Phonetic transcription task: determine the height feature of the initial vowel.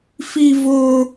high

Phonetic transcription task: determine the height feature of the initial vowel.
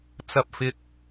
low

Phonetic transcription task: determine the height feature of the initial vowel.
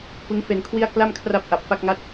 high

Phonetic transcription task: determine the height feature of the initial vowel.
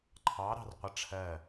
low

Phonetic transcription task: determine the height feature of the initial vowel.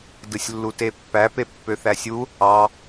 high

